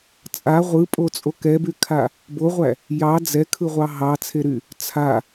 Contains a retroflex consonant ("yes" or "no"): no